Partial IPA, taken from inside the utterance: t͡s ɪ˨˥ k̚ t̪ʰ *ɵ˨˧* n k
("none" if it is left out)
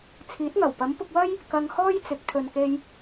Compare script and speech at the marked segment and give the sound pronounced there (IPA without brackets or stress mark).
ɵ˨